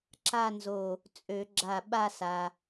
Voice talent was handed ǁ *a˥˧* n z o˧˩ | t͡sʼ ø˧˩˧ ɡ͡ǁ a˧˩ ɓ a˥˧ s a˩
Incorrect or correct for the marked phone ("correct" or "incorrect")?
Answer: correct